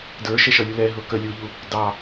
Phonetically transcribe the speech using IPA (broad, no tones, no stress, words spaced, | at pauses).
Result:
də˞ʃɛʃʌlʲu lɛɦʊ kə lʲuʎu | dɑ